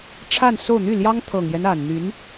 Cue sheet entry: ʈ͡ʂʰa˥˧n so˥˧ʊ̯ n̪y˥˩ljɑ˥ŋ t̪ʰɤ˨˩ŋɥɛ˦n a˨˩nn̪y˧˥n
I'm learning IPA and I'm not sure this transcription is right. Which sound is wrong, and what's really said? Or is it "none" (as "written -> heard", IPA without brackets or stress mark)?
ɥ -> j